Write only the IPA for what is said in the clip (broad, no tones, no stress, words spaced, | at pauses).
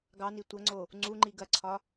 ɡɑni tʷɐŋ͡ǀo | ŋ͡ǀuŋ͡ǃi ɡɐǀʰɒ